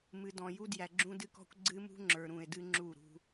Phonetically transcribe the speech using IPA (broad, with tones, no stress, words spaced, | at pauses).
mɨ˨ dɔ̃˨ju˦ djæ˨ɡ͡ǁũ˦dɨ˦kɔ̤˦kʷ ɡ͡ǀɨ˦mṳ˦ŋ͡ǁə˞˨ ɾũ˨e̯dɨ˦ ŋ͡ǁu˦˨ɾṳ˦